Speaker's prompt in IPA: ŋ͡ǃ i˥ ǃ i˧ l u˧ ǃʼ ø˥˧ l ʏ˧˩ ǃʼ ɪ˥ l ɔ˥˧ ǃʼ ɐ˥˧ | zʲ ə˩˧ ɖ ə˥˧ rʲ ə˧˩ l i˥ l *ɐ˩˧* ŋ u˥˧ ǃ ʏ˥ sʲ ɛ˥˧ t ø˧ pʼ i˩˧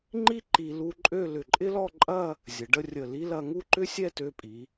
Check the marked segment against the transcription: incorrect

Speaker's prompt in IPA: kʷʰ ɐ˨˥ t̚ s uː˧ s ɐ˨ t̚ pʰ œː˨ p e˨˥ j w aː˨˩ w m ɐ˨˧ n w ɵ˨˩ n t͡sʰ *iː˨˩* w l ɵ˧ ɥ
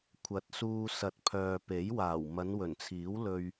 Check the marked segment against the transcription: incorrect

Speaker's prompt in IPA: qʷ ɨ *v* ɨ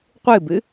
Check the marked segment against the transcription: incorrect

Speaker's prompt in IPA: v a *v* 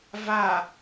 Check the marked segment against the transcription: incorrect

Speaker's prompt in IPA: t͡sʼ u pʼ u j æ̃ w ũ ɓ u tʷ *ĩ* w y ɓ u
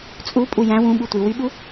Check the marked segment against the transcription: incorrect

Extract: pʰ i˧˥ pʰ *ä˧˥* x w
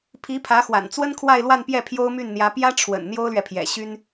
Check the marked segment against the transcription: correct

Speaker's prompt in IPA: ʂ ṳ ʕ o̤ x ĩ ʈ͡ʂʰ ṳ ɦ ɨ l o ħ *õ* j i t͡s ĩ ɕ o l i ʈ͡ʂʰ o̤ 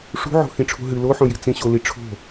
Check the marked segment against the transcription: correct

